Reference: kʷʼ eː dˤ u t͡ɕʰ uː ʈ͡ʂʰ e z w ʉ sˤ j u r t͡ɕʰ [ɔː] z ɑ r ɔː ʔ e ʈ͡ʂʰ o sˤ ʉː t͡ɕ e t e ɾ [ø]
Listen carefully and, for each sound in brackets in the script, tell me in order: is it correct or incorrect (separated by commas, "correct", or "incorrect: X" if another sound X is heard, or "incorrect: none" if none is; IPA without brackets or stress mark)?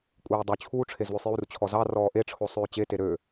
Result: incorrect: ɔ, correct